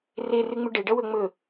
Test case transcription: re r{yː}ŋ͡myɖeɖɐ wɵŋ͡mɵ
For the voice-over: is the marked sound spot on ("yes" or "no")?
no